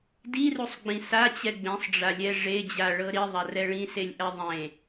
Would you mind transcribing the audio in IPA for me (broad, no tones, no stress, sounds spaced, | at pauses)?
d i r u sˤ ɡ͡b ĩ s a t͡ɕ ɛ ɡ͡b ẽ sˤ ɖ͡ʐ a lʲ ɛ ʐ e d͡ʑ a ɭ ɤ ɾ i ðˤ a r ɛ ɭ ĩ s e lʲ ʔ ɛ ðˤ ẽ